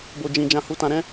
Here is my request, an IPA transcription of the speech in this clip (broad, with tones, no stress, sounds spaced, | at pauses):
b o˨ d͡ʒ ĩ˨ d͡ʒ ã˧ h u˧ t ã˧ ɾ ɛ̃˦